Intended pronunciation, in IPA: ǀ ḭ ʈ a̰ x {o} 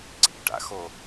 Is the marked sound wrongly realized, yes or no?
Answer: no